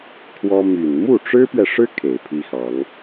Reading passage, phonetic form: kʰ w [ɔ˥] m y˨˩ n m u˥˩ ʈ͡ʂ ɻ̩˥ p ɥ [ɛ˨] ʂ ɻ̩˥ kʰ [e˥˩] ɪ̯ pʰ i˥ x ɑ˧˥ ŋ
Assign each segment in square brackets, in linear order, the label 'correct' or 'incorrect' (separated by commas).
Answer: correct, correct, incorrect